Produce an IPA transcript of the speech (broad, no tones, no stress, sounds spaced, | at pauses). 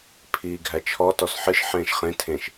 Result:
pʰ iː ɡʱ æ t͡ʃʰ ɔ t ɔ s ħ ɨ ʃ ħ ẽː ʃ χ ẽ tʰ ẽ ʃ